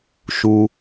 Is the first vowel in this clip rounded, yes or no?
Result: yes